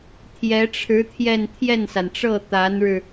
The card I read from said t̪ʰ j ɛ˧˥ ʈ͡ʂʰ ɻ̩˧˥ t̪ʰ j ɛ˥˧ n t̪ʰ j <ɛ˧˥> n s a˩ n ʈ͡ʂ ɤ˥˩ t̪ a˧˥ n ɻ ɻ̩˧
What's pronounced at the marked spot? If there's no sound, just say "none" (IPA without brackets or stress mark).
ɛ˥˩